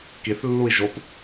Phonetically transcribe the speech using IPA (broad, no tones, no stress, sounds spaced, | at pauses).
k i θ lː u i̯ ʒ o p